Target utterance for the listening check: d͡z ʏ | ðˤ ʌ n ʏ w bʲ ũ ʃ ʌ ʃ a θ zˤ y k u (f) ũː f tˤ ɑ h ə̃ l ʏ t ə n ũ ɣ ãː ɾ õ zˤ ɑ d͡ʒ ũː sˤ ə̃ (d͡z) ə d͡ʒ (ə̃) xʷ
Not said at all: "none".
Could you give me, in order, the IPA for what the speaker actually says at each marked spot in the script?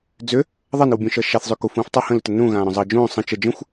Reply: f, t͡ʃ, ə̃

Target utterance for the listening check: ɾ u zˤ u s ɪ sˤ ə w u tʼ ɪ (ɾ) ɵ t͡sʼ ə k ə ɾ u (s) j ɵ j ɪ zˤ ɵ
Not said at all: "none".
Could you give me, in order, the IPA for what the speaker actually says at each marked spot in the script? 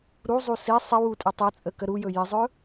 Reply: tˤ, none

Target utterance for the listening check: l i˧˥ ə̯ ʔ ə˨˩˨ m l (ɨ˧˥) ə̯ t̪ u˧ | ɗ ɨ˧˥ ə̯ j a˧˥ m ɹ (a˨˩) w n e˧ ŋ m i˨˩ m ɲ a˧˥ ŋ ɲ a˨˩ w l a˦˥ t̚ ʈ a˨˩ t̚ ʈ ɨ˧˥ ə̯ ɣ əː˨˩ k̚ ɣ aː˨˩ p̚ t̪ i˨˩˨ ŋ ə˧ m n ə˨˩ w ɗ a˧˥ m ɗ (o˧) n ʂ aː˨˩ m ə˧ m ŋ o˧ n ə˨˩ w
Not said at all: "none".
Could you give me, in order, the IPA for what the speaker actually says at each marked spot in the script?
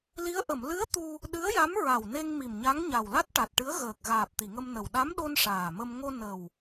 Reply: ɨ˧˥, a˨˩, o˧

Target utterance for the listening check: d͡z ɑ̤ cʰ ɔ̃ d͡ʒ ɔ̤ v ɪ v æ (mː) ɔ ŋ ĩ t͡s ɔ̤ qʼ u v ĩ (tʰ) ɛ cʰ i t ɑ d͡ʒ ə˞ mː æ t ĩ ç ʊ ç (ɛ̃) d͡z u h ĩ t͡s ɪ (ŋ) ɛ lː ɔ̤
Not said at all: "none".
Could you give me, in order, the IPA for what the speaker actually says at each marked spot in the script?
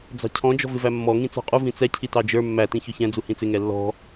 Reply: mː, t͡s, ɛ̃, ŋ

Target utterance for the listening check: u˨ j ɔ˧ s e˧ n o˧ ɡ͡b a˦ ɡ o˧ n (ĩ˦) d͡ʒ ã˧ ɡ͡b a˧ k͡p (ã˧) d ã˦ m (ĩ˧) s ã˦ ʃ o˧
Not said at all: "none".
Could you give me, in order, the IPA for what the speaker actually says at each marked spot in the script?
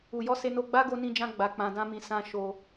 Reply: ĩ˧, ã˧, ĩ˧

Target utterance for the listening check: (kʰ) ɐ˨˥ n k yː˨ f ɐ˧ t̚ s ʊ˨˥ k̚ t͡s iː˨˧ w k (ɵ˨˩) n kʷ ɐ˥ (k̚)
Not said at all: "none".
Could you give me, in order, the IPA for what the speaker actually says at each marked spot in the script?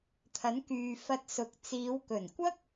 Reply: t̪ʰ, ɵ˨˩, k̚

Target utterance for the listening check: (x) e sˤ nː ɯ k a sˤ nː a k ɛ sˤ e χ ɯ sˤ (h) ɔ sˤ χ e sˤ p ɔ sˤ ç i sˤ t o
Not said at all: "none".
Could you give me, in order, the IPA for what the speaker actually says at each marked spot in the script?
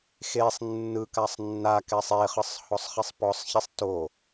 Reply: x, h

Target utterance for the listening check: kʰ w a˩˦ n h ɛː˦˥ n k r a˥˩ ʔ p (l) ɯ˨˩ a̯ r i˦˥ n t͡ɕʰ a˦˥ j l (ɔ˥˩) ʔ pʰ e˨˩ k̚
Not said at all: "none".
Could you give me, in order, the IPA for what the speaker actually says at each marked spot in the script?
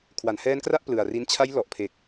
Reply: l, ɔ˨˩

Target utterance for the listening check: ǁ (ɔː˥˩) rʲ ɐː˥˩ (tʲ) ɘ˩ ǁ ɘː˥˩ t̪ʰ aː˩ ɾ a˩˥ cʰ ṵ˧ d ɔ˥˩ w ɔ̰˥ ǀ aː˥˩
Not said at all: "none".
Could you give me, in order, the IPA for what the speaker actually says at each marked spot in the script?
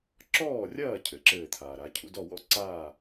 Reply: ɔː˥˩, cʰ

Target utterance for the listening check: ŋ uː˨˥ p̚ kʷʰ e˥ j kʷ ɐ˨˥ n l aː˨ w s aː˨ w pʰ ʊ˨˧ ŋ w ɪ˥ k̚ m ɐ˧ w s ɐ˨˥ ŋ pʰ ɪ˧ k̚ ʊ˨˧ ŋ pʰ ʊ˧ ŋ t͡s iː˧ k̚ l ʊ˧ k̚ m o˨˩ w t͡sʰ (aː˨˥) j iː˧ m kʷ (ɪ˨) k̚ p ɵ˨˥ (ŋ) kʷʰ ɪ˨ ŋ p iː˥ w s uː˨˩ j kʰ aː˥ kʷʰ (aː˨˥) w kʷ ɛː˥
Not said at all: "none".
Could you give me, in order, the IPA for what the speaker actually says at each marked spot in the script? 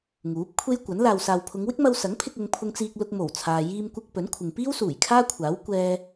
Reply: aː˨, ɪ˧, n, aː˨˥

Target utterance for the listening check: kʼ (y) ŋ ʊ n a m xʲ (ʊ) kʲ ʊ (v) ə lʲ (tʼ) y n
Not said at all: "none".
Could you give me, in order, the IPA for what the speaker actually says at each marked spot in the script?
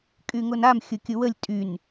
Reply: y, ʊ, w, tʼ

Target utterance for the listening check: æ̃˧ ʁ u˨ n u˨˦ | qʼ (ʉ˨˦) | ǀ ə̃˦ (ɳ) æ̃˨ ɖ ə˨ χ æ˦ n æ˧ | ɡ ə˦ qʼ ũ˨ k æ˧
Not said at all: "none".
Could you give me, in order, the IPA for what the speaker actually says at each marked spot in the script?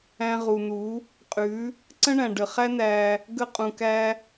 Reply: ʉ˨˦, ɳ

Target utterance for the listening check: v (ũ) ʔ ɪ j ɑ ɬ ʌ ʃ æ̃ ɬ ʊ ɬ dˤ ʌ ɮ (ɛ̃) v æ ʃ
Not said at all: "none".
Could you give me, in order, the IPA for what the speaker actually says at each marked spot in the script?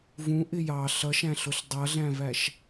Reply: ũ, æ̃

